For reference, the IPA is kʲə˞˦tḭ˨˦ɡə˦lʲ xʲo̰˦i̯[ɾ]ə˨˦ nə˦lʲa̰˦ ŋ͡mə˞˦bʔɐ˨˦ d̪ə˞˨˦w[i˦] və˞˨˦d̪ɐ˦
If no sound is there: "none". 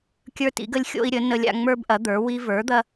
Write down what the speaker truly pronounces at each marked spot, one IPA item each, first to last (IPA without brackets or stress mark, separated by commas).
ɾʲ, i˦